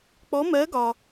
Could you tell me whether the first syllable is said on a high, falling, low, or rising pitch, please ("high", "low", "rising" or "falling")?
rising